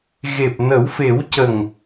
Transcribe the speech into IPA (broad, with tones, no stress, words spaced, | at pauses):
ɣe˨˩p̚nə˨˩˦wfe˨˩˦wcə˨˩ŋ